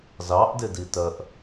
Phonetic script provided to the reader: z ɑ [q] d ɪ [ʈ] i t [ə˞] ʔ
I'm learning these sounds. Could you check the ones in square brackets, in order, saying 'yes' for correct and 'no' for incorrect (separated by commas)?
no, no, no